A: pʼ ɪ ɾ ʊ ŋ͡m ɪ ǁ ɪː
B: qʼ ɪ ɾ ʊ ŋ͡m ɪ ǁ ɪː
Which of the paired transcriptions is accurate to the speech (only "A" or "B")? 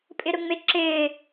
A